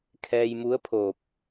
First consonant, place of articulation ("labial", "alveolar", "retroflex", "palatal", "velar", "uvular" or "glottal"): velar